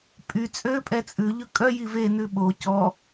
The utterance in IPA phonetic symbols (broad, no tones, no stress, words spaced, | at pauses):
pʼy t͡sʼø pʼɛt͡sʼʉ ʎɵkʼœ jive nʉɓo cɔ